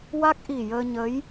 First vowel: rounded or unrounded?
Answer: unrounded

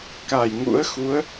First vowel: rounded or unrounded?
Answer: unrounded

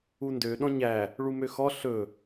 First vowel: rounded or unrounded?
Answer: rounded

